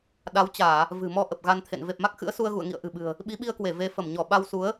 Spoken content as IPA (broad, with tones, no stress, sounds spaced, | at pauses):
ɗ a˨˦ w t͡ɕ aː˧˩˨ | v ɨ̤˨˩ m ɔ˧ ʔ ə˨˩ p̚ ɣ a˧ n t̪ʰ ḛ˧˨ n v e˨˩ p̚ m a˦˥ k̚ x ɨ̰˧˥ ə̯ s u˧ ə̯ ɣ ṵ˧˨ ə̯ ŋ ḭ˧˨ ə̯ ʔ ɨ̤˨˩ ɓ ɨ̤˨˩ ə̯ | ɓ i˨˦ ɓ i˧ ə̯ k w e˧˩ v e˨˦ f ə˧˩ m ɲ ɔ˧˩ ɓ a˧ w s u˨˦ ə̯